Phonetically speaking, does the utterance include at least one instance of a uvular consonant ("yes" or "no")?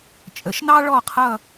yes